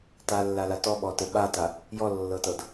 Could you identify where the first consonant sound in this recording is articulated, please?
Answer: alveolar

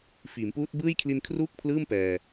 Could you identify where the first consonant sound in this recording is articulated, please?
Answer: labial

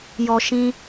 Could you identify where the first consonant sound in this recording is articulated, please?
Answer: palatal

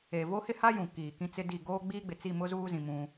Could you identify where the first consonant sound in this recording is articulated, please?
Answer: labial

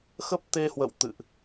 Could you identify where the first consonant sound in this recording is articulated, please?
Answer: velar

